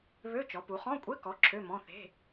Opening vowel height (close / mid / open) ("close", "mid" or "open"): mid